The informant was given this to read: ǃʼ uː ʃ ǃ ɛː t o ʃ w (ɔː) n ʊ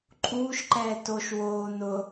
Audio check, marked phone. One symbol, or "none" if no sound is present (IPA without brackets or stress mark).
oː